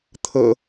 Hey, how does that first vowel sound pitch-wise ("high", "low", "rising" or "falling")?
low